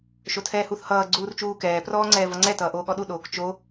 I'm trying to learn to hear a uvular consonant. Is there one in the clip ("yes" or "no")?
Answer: no